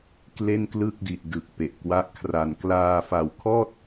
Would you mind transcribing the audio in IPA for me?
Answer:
kle˥˩nklɯ˥˩k̚di˨˩t̚dɯ˨˩k̚ pe˨˩ʔkwa˦˥ʔkʰra˧n klaː˧ fa˨˩wkʰɔː˥˩t̚

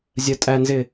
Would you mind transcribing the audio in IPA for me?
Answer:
zʲɜtʼænzɪ

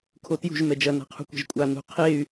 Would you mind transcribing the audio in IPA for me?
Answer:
kʰotjṳʒ mɛd͡ʒɐ na̤qʰṳkʷɛ̤ʒkʷʼa nṳ qʰey̯

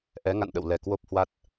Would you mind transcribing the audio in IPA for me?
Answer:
ʔɛ˨˦ŋa̰˧˨nɗə̰˧˨wlɛ˨˩ kwo˦˥p̚hwa˦˥t̚

